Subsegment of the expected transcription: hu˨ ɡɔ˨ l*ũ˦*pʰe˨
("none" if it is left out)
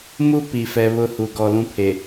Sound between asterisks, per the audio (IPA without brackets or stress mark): ũ˦